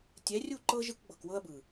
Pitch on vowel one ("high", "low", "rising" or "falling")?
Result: rising